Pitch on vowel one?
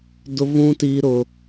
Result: high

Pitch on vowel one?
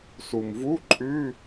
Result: low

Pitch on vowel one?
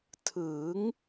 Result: rising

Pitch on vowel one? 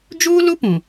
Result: high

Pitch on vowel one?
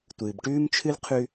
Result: low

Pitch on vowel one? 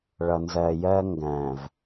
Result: low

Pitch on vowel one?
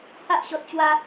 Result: high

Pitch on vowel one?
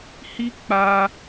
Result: high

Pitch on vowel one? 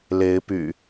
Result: rising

